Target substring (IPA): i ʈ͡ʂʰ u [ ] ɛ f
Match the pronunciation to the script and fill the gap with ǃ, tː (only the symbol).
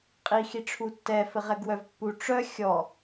tː